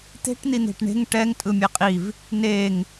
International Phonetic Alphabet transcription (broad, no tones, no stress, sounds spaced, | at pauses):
t̪ e̤ ʈ n̪ i n̪ e̤ ʈ ɳ e̤ ŋ ʈ ɛ ŋ tʼ ɯ mʲ e qʼ i v | n e ŋ